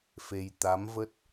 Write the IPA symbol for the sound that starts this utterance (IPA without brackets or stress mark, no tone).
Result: f